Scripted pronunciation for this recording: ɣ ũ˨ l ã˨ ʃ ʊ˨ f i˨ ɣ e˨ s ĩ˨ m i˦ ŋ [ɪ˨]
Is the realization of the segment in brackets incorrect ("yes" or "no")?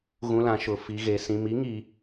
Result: yes